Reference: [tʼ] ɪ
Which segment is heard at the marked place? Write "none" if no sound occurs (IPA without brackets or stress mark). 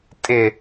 tʼ